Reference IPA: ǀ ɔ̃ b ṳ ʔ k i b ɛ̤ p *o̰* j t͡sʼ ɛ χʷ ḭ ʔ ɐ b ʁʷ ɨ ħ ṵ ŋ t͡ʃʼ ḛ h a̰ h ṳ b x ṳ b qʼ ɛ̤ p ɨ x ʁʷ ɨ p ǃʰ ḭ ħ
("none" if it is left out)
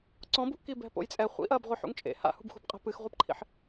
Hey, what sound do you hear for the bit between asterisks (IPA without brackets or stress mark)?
o̰